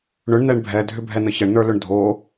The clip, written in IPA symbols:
ɳ ʏ ɳ n ɛ ɳ bʱ ɛ dʱ ʏ bʱ ɛ n ə ç ə ɳ n ə˞ l ʏ ɳ dʱ o

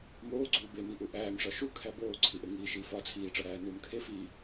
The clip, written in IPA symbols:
m oː ɡ͡ǀ uː b e m i ʔ u ʔ æː m ʂ ɒ ʃ u kʰ æ b oː ǀʰ i ʔ e ŋ iː ʃ iː f ɒ t͡sʰ iː ʈ͡ʂ ɒ ɾ æː n uː m kʰ e f iː

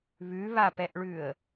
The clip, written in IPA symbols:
β ʉ β a p ɛ ʔ ɭ ʉ ə̯

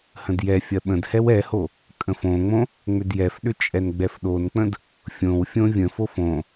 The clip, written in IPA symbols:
h ə̃ d j ɛ fʲ ɐ ɓ ə̃ d h ɛ w ɛ h o | kʼ ə̃ f õ ŋ͡m õ | ŋ͡m ʏ d j ɛ f ɗ ʏ t͡ʃʼ ɛ n ɡ͡b ɛ f ɗ o n k͡p ə̃ d | fʲ õ w fʲ õ vʲ ə̃ f o f õ

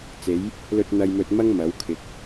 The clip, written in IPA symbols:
t͡s e˨˥ j | l ɵ˧ t̚ n̪ ɐ˧ j m ɵ˧ t̚ m ɐ˥ ŋ m ɐ˨˥ w kʰ ɪ˨˥ k̚

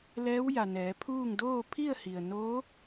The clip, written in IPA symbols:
l ɛː˧˥ w j a˩ n ɛː˩˧ pʰ uː˥˨ ŋ d oː˥˨ pʰ i˥˨ ə̯ h i˩ ə̯ n oː˧˥

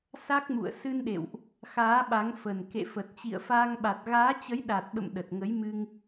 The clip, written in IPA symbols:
s a˦˥ k̚ m ṵ˧˨ ə̯ s ɨ˧ n ɗ ḛ˧˨ w ʔ | x aː˨˦ ɓ a˨˦ ŋ f ə˨˩ n k ḛ˧˨ f ə˨˩ t̚ t͡ɕ ḭ˧˨ ə̯ f aː˧ ŋ ɓ a˨˩ t̚ ɣ aː˨˦ t͡ɕ ə˨˦ j ɗ a˨˩ t̚ ɓ ə̰˧˨ m ɗ ə˨˩ t̚ ŋ ə˨˦ j m ɨ˧ ŋ

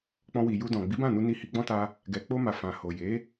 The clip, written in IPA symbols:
k͡p ɔ̃˧ w i˨ j u˧ d ɔ̃˨ ɡ͡b i˨˦ b ã˦˨ n u˧ n i˧ h i˧ ɡ͡b ɔ̃˦ t a˦ | ɡ ɛ˨ k͡p o˧ m a˨ f ã˨ h o˨ j e˨˦

